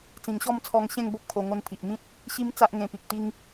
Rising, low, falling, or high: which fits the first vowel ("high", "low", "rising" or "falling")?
low